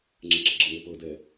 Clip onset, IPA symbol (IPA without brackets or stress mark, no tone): ŋ͡ǁ